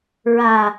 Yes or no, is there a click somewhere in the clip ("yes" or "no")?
no